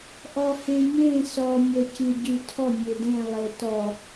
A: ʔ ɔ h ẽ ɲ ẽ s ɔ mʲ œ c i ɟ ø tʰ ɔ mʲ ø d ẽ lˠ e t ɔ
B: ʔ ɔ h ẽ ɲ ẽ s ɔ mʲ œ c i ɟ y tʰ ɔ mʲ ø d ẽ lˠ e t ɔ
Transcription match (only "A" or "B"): B